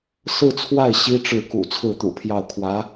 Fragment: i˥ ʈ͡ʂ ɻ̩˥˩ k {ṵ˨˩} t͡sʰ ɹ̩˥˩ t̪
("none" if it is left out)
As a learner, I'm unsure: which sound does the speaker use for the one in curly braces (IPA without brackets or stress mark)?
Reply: ṵ˨˩